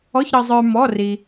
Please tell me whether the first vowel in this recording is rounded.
yes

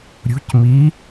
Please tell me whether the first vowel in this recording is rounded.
yes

